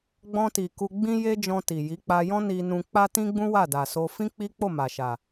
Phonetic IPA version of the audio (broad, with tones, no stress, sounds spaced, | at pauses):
ɡ͡b ɔ̃˧ t i˨ k u˧ ɡ͡b ĩ˦ j e˦ d͡ʒ ɔ̃˧ t i˨ j i˨˦ k͡p a˧ j ɔ̃˦ n i˧ n ũ˧ k͡p a˦ t ĩ˦ ɡ͡b ũ˦ w a˦˨ d a˨ s o˧ f ĩ˦ k͡p i˦ k͡p o˦˨ m a˨ ʃ a˨